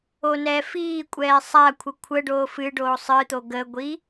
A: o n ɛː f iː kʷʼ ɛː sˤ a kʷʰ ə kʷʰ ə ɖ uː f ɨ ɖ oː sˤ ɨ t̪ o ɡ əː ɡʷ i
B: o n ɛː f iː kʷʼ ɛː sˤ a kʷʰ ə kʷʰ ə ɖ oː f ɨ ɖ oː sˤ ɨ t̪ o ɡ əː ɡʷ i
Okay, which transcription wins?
B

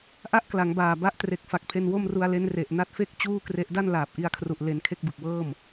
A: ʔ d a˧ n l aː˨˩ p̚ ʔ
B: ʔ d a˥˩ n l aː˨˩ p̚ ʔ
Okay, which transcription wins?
B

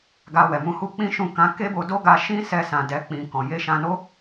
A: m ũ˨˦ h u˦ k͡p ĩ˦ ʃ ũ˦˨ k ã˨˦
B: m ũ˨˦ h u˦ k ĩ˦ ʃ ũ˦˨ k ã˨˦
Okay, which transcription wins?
A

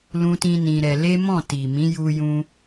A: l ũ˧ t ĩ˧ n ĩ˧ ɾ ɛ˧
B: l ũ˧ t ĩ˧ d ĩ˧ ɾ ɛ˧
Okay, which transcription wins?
A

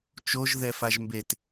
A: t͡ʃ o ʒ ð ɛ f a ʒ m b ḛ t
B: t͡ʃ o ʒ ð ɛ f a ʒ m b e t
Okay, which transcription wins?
B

